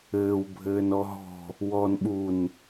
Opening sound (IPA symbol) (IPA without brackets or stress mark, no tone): ɘː